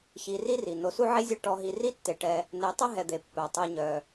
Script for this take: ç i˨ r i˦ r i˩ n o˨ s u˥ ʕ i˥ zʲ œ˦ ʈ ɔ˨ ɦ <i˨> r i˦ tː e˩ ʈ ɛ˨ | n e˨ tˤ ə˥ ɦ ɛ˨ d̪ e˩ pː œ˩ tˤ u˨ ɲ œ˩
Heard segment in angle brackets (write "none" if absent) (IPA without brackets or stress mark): i˨